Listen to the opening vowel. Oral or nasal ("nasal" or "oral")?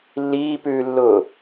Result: oral